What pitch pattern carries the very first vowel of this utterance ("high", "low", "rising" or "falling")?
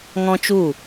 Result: high